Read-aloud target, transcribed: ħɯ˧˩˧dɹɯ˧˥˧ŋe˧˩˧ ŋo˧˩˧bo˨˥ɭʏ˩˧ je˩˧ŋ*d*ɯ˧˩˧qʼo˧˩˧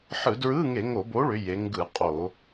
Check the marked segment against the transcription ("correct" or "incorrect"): incorrect